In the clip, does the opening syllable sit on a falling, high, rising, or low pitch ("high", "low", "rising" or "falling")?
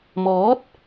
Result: rising